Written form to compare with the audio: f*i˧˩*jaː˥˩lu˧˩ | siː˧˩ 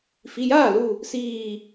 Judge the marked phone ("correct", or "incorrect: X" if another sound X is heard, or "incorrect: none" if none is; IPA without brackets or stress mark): incorrect: i˩˧˩